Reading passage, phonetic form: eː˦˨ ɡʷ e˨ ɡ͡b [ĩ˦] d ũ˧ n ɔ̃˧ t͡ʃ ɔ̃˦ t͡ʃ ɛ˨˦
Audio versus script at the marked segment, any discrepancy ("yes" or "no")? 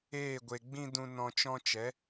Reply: no